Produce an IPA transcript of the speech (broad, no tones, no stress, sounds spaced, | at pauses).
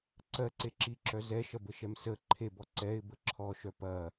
ǀ ɜ ǀ e ǁ i ǁ œ z ɛ ʃ ɐ b ə ʃ ɛ m s ə ǃʰ e b ɔ ǀ ɛ ɪ̯ b ə ǁʰ ɔ ʃ œ p ɐ